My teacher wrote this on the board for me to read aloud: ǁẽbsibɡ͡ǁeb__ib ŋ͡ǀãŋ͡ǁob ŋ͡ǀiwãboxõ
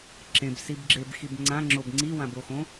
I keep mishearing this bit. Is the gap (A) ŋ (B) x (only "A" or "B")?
B